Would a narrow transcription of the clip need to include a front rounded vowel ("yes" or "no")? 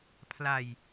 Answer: no